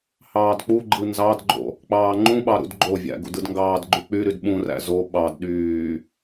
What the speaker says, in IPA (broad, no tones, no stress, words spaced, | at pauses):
hɑːdk͡puɡ͡ǃɯ nzɑdɡ͡ǃo̰ | k͡pɑːŋ͡ǃũɓɑ ɾṵdɡ͡ǃovʲæ̰ ɡṵdɯdŋɡɑːdɡ͡ǃy k͡pyɾyd ɓũræ̰ zo ɓɑd ɗyː